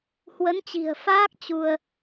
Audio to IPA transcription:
h w ə˨˦ n t͡ɕ i̤˨˩ ə̯ f aː˦˥ k̚ t͡ɕ u˧ ə̯

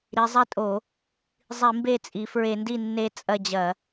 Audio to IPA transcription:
ɾ i˩˧ zˤ i˦˨ tʼ o˧˩˧ | zˤ i˧˩˧ m b e˦˨ t͡sʼ i˩˧ f ɹ e˧˩˧ n d i˦˨ nː e˦˨ t͡sʼ ɐ˦˨ d͡ʑ ɐ˧˩˧

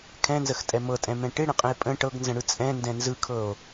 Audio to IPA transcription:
kʰ ɛ̃ n z ə x tʼ ɛ m ɤ tʼ ɛ̃ m ɛ̃ ʈ ɪ ɽ ə̃ qʼ ə̃ e̯ pʼ ə̃ ʈ ɤ ɡ n z ə̃ ɽ ɯ t͡sʼ ɛ̃ n d ɛ̃ n z ɯ kʰ ɤ o̯

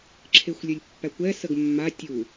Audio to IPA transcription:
ǁʰ e xʷ lʲ ɵ lʲ pː æ kʷ ɛ s ə ɡ mː a tʲ u

